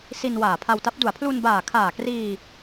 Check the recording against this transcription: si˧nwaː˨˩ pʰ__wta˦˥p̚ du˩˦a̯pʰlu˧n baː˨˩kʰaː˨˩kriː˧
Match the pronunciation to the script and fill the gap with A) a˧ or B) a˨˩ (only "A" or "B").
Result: A